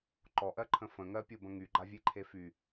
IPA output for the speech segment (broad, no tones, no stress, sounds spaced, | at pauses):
ǃ ɔ ʔ ɜ ǃʰ ə̃ f ə̃ ŋ ɜ pʲ o b ə̃ ŋ y ɡ͡ǃ a vʲ e ǃʰ e f y